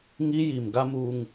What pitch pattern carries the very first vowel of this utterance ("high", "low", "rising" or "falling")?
high